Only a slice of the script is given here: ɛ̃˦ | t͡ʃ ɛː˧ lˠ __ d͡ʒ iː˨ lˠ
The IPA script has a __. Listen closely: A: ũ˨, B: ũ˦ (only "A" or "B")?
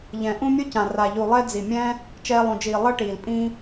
A